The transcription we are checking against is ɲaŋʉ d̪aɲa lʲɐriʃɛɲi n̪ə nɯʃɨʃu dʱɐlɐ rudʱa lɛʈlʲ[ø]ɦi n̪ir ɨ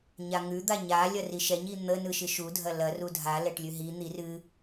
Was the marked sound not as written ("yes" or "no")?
yes